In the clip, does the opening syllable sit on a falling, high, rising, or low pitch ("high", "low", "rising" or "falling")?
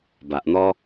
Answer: low